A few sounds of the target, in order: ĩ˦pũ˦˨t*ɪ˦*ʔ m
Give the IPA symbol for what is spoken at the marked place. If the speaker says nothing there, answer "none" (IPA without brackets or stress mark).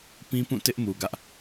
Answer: ɪ˦